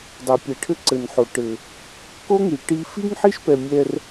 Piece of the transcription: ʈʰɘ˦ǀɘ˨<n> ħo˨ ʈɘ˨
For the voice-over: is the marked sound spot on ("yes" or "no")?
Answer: yes